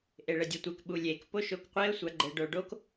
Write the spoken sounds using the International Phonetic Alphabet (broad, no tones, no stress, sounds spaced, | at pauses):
ʔ e ɭ ɘ dʲ e tʷ e k ɓ u lʲ e k p o ʃ o k qʷ e ə̯ sʷ a ɡ͡ǃ ɘ ɖ o ɖ o k